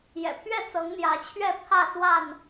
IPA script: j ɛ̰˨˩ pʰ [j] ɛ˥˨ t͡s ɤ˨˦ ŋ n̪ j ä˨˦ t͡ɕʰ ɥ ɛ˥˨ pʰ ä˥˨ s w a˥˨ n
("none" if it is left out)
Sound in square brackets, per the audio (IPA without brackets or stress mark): ɥ